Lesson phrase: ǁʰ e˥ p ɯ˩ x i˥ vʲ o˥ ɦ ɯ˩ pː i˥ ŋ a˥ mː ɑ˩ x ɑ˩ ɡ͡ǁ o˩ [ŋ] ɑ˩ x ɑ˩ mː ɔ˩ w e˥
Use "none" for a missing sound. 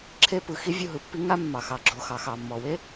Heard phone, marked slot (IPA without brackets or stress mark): x